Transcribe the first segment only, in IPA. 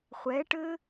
χʷ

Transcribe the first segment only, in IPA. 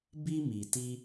b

